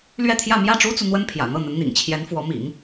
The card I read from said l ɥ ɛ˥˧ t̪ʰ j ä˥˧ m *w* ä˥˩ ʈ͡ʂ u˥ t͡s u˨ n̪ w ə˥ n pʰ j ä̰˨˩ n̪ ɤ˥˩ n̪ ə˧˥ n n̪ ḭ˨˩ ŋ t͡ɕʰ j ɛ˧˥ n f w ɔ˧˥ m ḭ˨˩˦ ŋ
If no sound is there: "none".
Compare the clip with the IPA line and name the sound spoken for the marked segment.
j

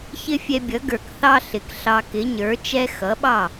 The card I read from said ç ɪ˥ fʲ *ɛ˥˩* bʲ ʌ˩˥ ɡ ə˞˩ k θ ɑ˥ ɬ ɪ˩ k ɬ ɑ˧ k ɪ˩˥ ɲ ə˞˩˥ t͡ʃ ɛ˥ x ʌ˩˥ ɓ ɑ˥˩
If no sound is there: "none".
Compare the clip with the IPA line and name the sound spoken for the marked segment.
ɛ˧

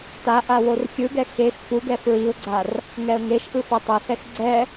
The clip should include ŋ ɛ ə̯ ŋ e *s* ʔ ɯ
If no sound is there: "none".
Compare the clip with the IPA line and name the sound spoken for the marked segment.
ʃ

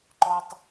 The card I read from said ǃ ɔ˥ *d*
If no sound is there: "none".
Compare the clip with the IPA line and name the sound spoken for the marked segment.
tˤ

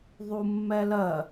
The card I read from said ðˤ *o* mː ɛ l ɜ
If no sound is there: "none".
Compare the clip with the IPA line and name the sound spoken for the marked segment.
u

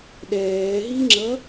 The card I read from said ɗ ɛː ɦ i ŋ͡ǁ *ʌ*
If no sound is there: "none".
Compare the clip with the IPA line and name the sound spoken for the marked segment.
ʌ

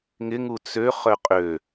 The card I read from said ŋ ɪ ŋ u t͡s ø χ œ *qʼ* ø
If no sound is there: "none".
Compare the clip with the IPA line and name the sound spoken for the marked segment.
qʼ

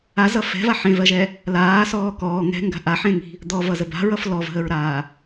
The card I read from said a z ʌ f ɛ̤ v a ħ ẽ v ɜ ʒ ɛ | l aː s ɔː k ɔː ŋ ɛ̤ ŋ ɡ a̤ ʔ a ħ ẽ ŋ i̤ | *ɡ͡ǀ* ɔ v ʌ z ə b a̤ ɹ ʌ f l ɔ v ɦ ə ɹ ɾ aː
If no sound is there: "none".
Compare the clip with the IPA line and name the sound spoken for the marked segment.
d̪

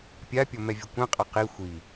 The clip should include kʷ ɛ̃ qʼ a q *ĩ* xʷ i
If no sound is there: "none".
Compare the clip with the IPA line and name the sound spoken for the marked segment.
i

